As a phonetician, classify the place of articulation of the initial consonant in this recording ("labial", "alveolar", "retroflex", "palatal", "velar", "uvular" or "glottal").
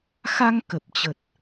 velar